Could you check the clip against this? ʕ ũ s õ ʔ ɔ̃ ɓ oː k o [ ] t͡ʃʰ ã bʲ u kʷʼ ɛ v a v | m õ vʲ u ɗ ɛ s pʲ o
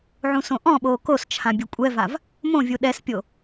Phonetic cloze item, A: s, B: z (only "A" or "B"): A